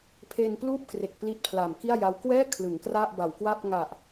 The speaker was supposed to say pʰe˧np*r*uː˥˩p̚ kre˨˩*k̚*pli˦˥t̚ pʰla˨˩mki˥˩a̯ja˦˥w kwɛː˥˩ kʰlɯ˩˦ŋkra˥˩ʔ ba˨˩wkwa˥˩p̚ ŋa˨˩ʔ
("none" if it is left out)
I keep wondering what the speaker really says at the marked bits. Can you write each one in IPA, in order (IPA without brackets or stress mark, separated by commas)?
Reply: l, k̚